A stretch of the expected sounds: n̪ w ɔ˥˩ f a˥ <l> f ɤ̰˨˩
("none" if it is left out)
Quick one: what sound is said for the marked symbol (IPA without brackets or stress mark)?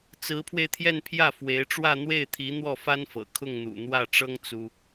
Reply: n